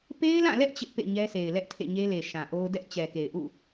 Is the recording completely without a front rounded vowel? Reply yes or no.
yes